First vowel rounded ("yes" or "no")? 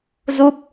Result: yes